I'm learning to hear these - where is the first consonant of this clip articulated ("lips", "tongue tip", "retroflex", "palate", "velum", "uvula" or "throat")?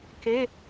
velum